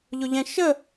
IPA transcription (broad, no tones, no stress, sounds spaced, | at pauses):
ʎ ʊ ʎ ɛ̃ ʃ ə